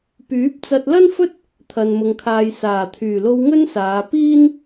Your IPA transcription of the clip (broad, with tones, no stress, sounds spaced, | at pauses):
p yː˨˥ p̚ t͡s ɐ˧ t̚ l ɐ˥ n f ɵ˥ t̚ | t̪ʰ ɐ˨ n m ʊ˨ ŋ kʰ aː˨ j s aː˨˩ t̪ʰ yː˨˩ l o˧ w ŋ ɵ˥ n s aː˨˧ p iː˥ n